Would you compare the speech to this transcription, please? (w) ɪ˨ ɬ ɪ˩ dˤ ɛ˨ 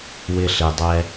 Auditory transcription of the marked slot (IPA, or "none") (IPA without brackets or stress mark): w